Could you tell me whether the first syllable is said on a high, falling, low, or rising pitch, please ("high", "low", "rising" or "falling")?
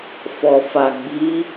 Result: low